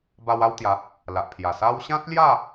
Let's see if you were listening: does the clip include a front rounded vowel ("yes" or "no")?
no